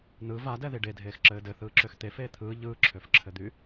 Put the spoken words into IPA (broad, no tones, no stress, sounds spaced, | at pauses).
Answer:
n ɯ v a d ɛ ð i ɖ e dʱ eː x ǁ ɘː d ɘ θ ɯː ǁ ø x t̪ e f eː t̪ʰ ɯː ʎ ɯː ǁʰ ø f ǁʰ ɘ d̪ y